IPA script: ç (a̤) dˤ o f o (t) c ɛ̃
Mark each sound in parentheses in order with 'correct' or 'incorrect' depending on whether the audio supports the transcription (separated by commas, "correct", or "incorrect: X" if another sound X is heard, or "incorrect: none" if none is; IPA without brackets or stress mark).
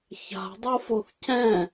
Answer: correct, incorrect: θ